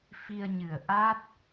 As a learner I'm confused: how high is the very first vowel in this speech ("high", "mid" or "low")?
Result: high